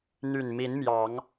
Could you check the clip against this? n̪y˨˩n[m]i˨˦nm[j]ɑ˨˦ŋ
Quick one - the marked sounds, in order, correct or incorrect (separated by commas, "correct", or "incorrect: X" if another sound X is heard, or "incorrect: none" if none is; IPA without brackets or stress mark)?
correct, correct